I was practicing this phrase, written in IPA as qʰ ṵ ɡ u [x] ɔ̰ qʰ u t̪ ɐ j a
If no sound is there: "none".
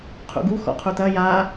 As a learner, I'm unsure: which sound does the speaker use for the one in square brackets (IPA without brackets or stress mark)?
x